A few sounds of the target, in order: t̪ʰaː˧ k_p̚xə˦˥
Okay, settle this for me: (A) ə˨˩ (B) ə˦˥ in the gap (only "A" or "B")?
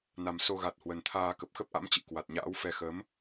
A